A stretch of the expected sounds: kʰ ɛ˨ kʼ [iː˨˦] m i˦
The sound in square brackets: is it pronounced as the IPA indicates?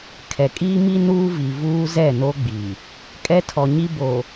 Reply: no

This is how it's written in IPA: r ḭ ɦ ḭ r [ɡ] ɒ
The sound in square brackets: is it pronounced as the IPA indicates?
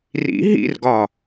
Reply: yes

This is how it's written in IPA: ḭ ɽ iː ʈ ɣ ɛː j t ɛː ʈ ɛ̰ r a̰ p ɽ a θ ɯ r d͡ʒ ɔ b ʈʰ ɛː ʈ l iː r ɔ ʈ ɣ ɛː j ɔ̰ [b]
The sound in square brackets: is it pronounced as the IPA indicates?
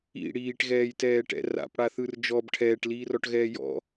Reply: no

